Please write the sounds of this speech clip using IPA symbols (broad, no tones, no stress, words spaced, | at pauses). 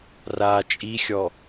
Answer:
ra t͡ʃʼixʲɔ